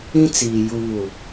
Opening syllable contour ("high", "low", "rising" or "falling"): high